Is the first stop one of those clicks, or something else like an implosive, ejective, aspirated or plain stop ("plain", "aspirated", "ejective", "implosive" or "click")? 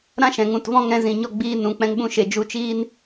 plain